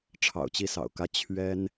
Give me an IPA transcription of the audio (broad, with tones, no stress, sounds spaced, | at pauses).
ʈ͡ʂʰ ɑ̰˨˩ ʊ̯ t͡ɕ i˥˩ s ɑ̰˨˩ ʊ̯ k ä˥ t͡ɕʰ ɥ ɛ˥ n